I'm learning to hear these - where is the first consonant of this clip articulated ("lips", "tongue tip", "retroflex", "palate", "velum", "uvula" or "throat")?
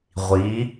uvula